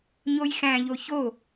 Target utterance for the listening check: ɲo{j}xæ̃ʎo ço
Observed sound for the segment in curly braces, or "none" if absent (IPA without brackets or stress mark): j